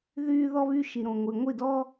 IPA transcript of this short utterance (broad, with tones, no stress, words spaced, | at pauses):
ðyː˧ ðɔ˧βy˧ ʃi˨ɾõ˨ŋʷi˨ ŋʷi˦˨dɔ˦